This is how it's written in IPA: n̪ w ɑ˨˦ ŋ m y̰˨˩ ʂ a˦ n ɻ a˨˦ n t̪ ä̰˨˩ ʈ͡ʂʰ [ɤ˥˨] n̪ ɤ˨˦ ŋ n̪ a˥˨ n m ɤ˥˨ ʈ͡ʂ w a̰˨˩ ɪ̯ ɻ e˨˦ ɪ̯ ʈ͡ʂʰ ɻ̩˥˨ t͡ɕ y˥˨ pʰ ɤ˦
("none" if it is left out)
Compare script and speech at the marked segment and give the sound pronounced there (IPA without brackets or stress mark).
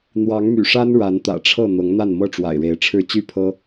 ɤ˥˨